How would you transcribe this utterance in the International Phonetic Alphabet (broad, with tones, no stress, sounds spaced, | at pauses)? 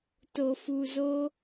t o˨ f u˨ z o˧